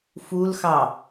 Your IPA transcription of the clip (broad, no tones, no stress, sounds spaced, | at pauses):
f u l x ɑ